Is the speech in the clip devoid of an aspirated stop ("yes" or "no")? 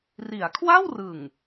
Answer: no